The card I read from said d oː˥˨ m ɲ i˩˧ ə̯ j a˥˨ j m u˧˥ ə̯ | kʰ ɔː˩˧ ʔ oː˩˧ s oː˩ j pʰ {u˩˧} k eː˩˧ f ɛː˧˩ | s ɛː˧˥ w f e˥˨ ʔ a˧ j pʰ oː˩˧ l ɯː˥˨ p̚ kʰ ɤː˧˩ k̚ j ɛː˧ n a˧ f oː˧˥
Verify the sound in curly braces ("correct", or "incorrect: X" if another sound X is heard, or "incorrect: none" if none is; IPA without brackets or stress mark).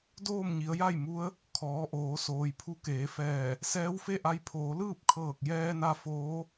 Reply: incorrect: u˧˥